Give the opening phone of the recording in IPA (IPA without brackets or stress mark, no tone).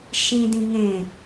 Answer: ʃ